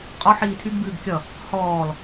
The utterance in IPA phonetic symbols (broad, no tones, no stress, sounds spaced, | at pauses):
qʼ ɔ ħ iː tʰ y ɡ b ɨː ɡ kʲ ʌ | h ɔː l